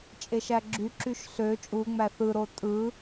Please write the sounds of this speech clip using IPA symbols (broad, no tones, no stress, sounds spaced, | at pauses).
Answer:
t͡ʃʼ e ʃ æ ɡ͡ǁ y ǁ y ʃ ɬ ø t͡ʃʼ u ŋ͡m æ θ ɯ ɾ o tʼ ɯ